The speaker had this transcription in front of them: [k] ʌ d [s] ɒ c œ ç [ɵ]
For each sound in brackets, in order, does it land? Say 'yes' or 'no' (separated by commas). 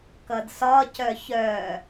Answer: yes, yes, no